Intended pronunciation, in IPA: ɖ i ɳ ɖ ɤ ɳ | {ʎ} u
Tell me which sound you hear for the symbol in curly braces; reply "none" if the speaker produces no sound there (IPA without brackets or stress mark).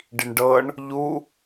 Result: ʎ